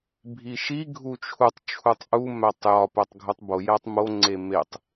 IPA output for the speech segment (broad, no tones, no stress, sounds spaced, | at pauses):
bʱ i ʃ i ɡʱ u t͡ʃʰ u tˤ t͡ʃʰ u tˤ ʔ u m æ tˤ j ɒ p æ tˤ ɡʱ u tˤ b o j æ tˤ m o ŋ͡ǀ e m e tˤ